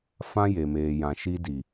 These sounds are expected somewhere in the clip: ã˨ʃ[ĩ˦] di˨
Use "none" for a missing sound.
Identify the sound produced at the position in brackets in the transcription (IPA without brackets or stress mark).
i˦